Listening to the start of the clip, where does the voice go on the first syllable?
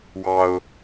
high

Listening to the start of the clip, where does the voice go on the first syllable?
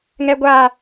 high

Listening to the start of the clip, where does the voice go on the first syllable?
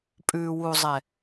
low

